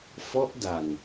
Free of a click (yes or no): yes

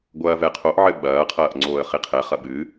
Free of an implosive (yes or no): no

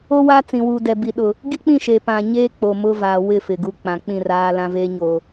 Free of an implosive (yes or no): no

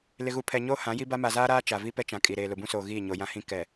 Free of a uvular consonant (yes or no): yes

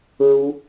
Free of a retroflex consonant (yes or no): yes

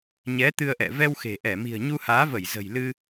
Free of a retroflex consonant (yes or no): yes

